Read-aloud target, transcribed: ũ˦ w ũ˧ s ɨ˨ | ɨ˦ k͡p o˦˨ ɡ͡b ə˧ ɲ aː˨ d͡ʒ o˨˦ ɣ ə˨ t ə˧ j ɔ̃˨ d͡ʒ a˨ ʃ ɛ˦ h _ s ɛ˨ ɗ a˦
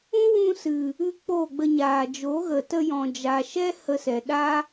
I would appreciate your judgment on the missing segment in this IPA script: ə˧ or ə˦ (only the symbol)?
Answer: ə˧